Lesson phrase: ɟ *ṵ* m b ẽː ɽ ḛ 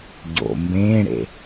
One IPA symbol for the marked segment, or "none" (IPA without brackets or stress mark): o̰